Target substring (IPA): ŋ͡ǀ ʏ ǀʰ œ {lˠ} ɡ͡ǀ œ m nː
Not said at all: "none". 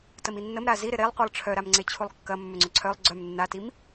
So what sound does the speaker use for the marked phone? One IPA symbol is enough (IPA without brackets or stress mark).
lˠ